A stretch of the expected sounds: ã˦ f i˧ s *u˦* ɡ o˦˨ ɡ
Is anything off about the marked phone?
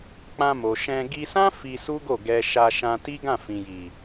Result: no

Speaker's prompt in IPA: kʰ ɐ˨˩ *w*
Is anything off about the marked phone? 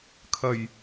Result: yes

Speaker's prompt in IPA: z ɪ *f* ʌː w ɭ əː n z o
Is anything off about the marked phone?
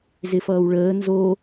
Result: no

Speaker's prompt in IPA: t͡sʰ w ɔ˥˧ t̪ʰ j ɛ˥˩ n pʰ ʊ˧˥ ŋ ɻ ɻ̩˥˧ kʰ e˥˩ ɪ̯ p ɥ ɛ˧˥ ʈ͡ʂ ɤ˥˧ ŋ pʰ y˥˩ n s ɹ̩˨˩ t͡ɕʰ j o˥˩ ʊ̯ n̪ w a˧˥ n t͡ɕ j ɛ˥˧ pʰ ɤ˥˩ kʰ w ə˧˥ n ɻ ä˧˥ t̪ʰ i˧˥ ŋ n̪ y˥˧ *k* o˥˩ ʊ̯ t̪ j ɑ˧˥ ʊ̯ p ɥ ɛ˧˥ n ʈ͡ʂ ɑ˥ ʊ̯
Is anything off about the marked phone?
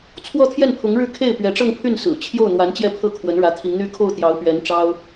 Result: yes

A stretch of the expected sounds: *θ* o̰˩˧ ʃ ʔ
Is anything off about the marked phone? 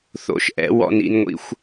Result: no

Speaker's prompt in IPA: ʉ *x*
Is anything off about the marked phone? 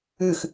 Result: no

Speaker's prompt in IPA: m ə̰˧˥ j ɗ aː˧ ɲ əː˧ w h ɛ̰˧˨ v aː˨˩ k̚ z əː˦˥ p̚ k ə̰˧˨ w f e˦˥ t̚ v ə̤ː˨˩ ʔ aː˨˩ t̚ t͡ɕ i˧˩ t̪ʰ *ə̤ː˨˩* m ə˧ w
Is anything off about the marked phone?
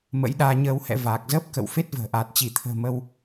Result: no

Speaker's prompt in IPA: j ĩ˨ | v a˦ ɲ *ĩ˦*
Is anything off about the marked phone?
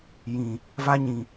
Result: yes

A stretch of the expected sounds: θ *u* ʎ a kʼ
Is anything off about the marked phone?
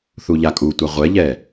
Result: no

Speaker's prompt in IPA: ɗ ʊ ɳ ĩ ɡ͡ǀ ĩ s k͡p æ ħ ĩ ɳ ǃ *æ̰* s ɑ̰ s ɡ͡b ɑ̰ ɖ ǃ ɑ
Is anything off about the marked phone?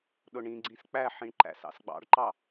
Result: no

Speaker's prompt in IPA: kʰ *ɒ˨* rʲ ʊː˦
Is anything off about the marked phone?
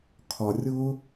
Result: no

